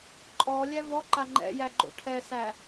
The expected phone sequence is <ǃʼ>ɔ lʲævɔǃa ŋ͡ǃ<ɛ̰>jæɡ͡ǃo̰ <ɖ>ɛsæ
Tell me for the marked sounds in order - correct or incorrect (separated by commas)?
correct, correct, incorrect